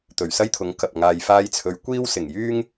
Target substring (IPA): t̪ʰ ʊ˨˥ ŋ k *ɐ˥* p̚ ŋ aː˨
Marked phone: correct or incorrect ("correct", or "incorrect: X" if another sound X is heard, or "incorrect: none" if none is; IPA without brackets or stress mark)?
incorrect: ɐ˨